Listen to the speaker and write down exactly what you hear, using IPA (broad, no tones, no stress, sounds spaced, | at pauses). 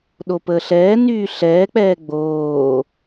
ɗ o p əː ɬ ɛː n yː ɬ ɛː k͡p ɛː ɡ͡b oː